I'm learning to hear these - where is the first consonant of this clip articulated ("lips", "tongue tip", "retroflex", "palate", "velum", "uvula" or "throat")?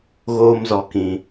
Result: velum